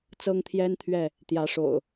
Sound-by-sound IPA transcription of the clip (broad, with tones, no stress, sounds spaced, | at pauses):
t͡s ɤ˦ ŋ t̪ʰ j ɛ˦ n t̪ʰ ɥ ɛ˥˨ | t̪ j ä˨˦ ʂ o̰˨˩ ʊ̯